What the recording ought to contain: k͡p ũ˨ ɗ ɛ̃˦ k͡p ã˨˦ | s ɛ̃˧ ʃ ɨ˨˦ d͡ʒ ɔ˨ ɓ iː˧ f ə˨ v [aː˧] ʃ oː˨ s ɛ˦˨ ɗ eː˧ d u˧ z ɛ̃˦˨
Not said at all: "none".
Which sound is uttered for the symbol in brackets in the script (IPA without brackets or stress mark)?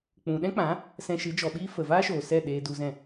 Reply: aː˦